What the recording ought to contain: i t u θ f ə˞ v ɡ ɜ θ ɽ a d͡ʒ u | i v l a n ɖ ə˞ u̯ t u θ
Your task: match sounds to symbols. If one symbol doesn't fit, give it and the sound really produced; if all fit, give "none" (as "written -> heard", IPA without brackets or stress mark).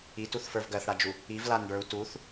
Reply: none